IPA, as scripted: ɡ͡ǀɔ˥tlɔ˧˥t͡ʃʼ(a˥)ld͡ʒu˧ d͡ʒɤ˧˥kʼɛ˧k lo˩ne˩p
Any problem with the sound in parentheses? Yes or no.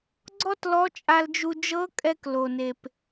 yes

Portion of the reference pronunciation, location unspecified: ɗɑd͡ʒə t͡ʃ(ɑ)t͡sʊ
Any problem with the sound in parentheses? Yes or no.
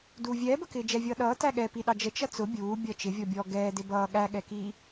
yes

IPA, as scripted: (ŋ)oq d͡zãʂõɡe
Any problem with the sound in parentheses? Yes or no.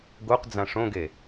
yes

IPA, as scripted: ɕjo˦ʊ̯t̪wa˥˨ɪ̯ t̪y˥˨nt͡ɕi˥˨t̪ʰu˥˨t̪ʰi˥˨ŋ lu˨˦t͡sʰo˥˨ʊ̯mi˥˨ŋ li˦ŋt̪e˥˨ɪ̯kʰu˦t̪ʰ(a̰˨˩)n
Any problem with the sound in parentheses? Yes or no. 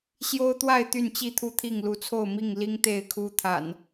no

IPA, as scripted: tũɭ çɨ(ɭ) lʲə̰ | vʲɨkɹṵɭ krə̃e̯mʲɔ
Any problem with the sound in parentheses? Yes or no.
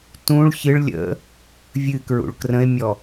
no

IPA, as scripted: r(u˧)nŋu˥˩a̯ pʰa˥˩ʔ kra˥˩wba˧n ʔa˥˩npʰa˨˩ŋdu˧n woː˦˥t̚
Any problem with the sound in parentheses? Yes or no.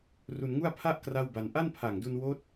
no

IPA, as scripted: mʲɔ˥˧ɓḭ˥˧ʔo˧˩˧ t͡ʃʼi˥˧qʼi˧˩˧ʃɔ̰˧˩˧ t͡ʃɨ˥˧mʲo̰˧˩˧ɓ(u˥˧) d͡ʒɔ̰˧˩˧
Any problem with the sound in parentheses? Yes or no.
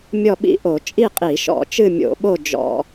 yes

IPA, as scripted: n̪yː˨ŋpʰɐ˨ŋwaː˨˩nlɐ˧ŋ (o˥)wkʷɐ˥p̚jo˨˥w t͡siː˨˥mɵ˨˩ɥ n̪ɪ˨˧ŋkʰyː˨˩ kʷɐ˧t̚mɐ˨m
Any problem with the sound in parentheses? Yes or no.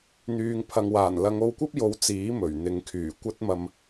yes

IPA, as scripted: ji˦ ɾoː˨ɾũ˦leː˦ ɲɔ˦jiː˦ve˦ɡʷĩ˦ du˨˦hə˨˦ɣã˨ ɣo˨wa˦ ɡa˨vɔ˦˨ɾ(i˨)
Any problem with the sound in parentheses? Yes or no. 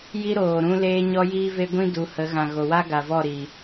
yes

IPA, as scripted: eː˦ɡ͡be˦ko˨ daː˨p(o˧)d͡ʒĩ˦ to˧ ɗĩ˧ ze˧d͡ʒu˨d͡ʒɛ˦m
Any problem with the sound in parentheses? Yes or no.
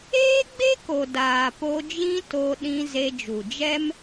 no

